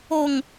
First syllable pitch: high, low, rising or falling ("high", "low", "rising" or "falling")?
low